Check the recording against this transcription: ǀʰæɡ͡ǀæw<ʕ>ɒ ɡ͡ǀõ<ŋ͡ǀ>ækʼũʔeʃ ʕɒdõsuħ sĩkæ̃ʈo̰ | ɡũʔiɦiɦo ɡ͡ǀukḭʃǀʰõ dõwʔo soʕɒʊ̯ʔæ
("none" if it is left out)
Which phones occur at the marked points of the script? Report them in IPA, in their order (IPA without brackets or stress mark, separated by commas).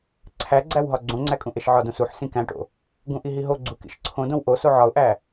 ɦ, ŋ͡ǀ